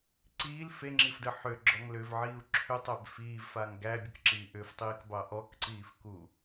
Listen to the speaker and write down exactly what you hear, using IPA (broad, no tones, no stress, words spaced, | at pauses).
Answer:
ǀiːl feŋ͡ǁifdə ħʏɡ͡ǁɔŋ lʏvʕiːu̯ ǁʰʏtˤæb fiːvfaŋ ɡæbʲəkǁiː ʔʏftˤiːkbɑ ʔɔkǀiːfku